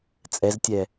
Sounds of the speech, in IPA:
t͡sʼ ɛ z tʲ ɛ

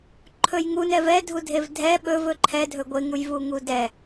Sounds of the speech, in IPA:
ǃʰ ɵ j ŋ u n ɛ v ɛ dʱ u dʱ e v dʱ ɛ ɓ ɵ v ɵ ǃʰ ɛ dʱ ɵ ɡʷ e ŋ u j v u ŋ u d ɛ

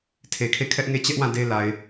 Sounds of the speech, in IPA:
tʰ e˨ kʰ e˦˨ kʰ ɛ˦ ʔ ŋ e˦˨ t͡ɕ ɛ˦ ʔ w ã˦˨ d e˦ l a˨ ɪ̯

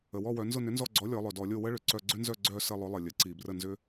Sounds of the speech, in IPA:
ə˩ w ɔ˦˨ w œ˩˧ n z ʊ˦˨ n ʏ˨˥ n z ɔ˦˨ ɡ͡ǀ ɔ˨˥ lʲ ɔ˩˧ lˠ œ˩ d ɔ˧˩˧ lʲ o˦˨ w ə˦ ɭ ʏ˩˧ ǀ œ˦˨ ɡ͡ǀ ʏ˦ n z œ˦˨ ɡ͡ǀ œ˦˨ s ə˦˨ lˠ ʊ˨˥ lˠ ə˩ lʲ ə˩˧ ǀ i˧˩˧ b r ə˦˨ n z ʏ˦

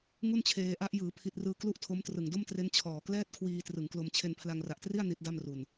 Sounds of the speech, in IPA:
ŋ u˥˩ n t͡ɕʰ eː˧ ʔ a˦˥ ʔ j ɯː˩˦ pʰ i˨˩ t̚ r ɯː˧ k l u˥˩ ʔ tʰ o˦˥ m t r ɯ˨˩ ŋ d o˥˩ m t r e˦˥ n t͡ɕʰ ɔː˨˩ k l ɛː˥˩ t̚ kʰ w iː˧ t r ɯ˩˦ ŋ k l o˧ m t͡ɕʰ e˧ n pʰ l a˧ ŋ r a˨˩ ʔ t r i˥˩ a̯ n i˦˥ t̚ d a˥˩ m r u˧ n

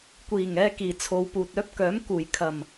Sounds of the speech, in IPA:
kʷ iː˨˩ ŋ ɛː˧ k iː˨˩ t͡sʰ o˨ w p uː˨ t̚ œː˥ p̚ k œː˨˥ m k uː˨˩ j kʰ ɐ˨˩ m

